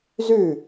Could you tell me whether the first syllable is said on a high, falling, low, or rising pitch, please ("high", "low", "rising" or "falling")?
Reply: falling